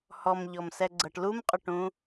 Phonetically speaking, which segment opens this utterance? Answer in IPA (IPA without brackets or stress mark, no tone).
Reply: h